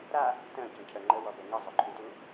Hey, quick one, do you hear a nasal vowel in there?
yes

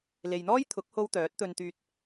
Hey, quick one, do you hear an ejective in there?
no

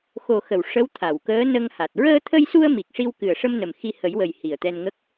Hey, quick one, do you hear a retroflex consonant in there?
yes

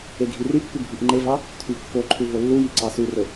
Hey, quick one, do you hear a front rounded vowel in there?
yes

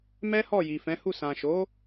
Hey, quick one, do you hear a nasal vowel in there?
yes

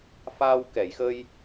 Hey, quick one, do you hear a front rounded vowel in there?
no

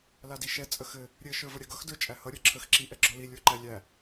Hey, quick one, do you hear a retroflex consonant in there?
no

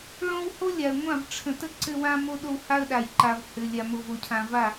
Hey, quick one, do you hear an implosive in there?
yes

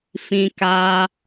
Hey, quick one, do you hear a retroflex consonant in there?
no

